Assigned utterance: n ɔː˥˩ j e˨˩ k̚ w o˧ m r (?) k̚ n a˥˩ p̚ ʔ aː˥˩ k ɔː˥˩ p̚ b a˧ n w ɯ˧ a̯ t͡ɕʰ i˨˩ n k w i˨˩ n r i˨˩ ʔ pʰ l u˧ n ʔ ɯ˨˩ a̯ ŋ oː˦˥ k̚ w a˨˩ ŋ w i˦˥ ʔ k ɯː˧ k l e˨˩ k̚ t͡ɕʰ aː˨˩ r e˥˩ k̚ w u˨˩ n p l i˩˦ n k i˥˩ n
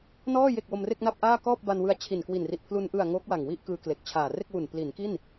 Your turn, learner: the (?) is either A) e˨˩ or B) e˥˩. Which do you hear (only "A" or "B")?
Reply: B